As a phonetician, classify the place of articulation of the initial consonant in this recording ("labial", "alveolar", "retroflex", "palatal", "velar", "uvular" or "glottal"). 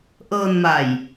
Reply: glottal